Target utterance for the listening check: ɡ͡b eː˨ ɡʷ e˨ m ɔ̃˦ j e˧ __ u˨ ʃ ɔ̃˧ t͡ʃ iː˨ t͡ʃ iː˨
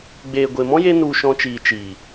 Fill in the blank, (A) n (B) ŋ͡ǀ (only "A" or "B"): A